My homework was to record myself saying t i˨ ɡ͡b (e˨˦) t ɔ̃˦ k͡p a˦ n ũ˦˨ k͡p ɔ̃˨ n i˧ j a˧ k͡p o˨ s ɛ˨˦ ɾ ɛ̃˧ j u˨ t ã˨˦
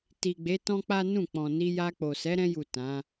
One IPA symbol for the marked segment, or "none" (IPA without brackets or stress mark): e˨˦